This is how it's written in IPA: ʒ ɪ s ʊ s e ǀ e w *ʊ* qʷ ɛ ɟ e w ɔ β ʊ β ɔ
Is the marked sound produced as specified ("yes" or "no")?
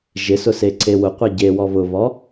yes